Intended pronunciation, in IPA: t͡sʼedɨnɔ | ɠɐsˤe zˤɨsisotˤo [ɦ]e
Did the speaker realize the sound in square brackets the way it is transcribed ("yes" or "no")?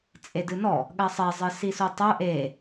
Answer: no